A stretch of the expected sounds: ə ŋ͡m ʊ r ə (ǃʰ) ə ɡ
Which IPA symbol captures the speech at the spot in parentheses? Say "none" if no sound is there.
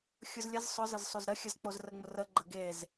ɡ͡ǃ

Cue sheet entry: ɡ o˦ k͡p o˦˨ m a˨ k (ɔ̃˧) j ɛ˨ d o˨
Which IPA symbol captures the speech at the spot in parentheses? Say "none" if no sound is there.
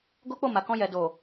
ɔ̃˧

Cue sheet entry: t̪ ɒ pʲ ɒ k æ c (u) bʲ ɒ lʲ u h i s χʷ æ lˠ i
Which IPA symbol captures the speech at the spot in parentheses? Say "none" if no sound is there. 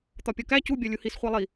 u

